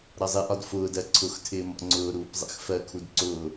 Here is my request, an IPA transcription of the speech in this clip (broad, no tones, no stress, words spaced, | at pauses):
ɾʌzˤɪʔɒd fʊːdɜ ǀʰʊxtʰɪː mɔ̰ŋ͡ǀʊːɾuːp zˤɛ̰xfɜkʰud ǀʊː